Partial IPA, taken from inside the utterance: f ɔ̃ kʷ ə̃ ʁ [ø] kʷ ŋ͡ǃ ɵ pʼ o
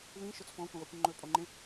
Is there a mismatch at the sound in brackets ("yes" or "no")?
yes